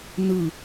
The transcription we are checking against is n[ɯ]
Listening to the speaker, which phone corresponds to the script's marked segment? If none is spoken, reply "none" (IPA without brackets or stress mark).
ɯ